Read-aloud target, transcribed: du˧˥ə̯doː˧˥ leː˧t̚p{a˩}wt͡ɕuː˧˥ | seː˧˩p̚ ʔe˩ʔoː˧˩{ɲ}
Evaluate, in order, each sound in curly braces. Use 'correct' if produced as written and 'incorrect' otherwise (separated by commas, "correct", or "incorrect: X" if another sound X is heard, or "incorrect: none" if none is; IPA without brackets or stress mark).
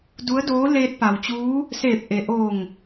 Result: correct, incorrect: ŋ